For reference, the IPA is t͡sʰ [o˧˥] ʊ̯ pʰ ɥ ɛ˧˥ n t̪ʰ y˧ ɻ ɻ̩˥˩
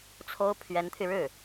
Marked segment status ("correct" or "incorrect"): incorrect